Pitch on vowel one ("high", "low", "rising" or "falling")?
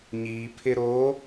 low